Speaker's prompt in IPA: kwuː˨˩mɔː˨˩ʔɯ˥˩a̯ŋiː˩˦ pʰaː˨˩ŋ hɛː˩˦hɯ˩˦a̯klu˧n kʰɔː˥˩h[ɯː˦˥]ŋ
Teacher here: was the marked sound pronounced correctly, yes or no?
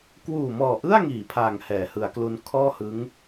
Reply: no